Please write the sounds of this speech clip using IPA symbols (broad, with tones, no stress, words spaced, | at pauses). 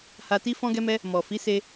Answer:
ha˧ti˦ fɔ̃˦ɡɛ˦mɛ˦ | mɔ˨ fi˨˦se˧